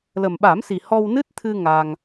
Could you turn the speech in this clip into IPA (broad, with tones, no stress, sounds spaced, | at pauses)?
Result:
l ə˨˩ m ɓ a˨˩˦ m s i˨˩ h ɔ˧ w n ɨ˦˥ t̚ t̪ʰ ɨ˧ ŋ a˧ ŋ